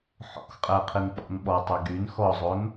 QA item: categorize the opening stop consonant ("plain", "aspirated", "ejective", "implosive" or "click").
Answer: ejective